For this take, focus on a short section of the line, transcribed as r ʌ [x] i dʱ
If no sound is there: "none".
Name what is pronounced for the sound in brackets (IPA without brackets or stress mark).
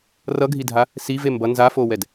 ɡʱ